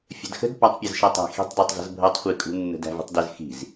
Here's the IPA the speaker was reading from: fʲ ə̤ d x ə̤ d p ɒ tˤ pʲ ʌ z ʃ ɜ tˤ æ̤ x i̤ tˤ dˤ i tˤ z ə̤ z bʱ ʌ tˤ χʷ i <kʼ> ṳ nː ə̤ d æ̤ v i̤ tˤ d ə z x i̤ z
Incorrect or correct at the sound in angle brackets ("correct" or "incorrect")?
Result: correct